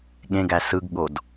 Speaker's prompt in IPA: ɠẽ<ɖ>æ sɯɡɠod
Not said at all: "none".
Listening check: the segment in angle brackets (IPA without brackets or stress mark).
ɡ